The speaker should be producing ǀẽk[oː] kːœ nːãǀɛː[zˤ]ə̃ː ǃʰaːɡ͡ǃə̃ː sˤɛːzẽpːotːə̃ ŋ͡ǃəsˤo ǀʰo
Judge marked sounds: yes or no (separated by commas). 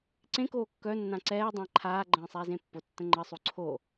yes, no